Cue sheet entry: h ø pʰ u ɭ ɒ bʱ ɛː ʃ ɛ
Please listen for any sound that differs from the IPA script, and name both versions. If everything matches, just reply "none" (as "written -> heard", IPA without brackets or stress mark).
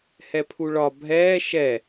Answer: ø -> ɛ